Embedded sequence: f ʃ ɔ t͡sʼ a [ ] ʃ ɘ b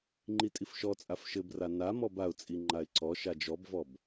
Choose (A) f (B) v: A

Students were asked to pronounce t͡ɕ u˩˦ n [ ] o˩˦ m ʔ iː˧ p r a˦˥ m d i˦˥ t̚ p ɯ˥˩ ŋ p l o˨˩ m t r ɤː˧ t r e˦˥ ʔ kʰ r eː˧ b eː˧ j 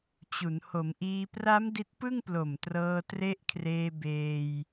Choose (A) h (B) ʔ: A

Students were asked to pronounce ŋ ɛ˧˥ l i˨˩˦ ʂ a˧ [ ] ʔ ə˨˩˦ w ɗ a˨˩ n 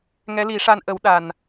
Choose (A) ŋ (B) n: B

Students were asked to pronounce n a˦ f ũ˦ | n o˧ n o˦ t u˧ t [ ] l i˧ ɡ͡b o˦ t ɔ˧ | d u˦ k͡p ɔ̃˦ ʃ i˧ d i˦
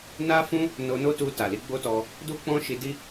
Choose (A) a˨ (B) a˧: A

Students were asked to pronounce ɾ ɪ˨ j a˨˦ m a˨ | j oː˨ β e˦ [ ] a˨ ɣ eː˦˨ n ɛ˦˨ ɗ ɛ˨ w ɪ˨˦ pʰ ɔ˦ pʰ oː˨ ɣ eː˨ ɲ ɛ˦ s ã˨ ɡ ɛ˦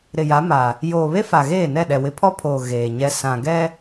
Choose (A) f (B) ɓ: A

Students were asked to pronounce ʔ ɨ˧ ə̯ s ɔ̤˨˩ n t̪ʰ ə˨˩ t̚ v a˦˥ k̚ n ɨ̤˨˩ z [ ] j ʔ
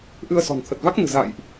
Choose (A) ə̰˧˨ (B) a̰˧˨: B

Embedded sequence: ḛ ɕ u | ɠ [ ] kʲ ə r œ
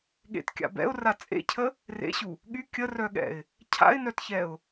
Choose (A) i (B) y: B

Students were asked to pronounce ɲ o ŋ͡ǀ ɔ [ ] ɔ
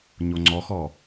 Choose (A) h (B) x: B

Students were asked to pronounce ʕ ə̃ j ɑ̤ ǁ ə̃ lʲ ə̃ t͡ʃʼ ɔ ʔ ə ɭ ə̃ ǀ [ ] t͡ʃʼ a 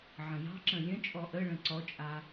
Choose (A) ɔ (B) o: A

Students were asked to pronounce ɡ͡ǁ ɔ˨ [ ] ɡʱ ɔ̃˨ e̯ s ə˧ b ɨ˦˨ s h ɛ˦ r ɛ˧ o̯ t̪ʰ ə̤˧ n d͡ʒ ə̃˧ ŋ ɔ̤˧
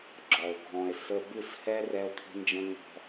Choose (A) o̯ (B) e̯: A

